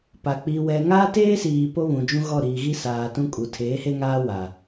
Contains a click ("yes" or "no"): no